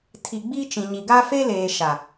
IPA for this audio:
tʰ i˨ ɡ͡b i˦ t͡ʃ ĩ˨ ɲ i˨ ɡ a˦ f e˦ l eː˨ ʃ a˨

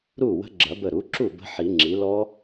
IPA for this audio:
ɾ u˥˩ w ə̤˦˥ ɡ͡ǁ ɐ˨˩˦ b ə˧˩ ɾ u˩˥ ǁ u˥˩ b ə̤˦˥ ħ i˨˩˦ ŋ͡ǁ i˩˥ l ɔ˦˥

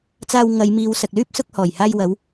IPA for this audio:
t͡s aː˧ w ŋ ɐ˨˧ j m iː˨˧ w s ɐ˨ k̚ l yː˥ p̚ s ʊ˧ k̚ h ɔː˨˩ j h aː˧ j w ɐ˨˧ w

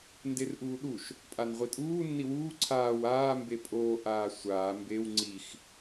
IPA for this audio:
n d e r ʔ uː ɗ u ʃ | pʼ a n ʁʷ i tʼ uː nː i w uː ǀʰ aː w aː m b e pʼ oː ʔ aː sʷ aː m b e w ŋ͡ǀ i x

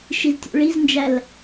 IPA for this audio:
ʃ i z tʲ ṵ ɭ i z n d͡ʒ æ l

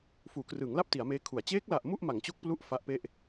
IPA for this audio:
f uː˩˦ k r ɯː˩˦ ŋ l a˥˩ p̚ t i˩˦ a̯ m eː˦˥ kʰ u˩˦ a̯ t͡ɕ eː˦˥ k̚ l a˨˩ ʔ m u˥˩ ʔ m a˩˦ ŋ t͡ɕ o˦˥ k̚ p l u˦˥ ʔ f a˦˥ ʔ p e˥˩ ʔ

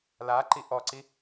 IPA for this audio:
l a ǃ i ʔ ɔ ǀ i

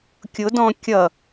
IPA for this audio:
kʲ ʊ d ɔ̃ kʲ ʌ

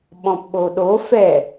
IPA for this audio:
ɓ ɔ̃ p ɓ o ɗ o f ɛ

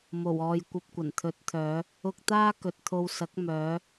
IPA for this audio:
m o˨˩ w ɔː˨ j kʷ ɐ˧ p̚ kʷ ɐ˨˩ n t̪ʰ ɵ˨˥ t̚ t̪ʰ œː˨˧ | ʊ˧ k̚ t̪ aː˥ k ɵ˨ t̚ t̪ʰ o˧ w s ɐ˨˥ k̚ m œː˨˧

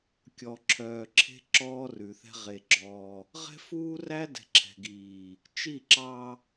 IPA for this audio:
kʲ ɔ˨ ǁʰ œː˨ ǁʰ e̤˦ ǁ ɔː˦ r ʉ˨ θ ɛ̤˦ ʁ e˨ ɡ͡ǁ ɔː˦ | ʁ ɛ̤˦ f uː˦ r æ˦ d ɛ̤˨ ǁʰ ɛ̤˨ ɡ iː˨ | t͡ʃ i˦˨ ǁ ɑ˦

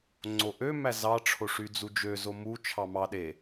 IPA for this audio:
ŋ͡ǀ o ʔ ø m æ z ɑ ʈ͡ʂʰ o ʂ y d͡z u d͡ʒ ø z o m u t͡ʃʰ ɑ m ɑ ɗ e

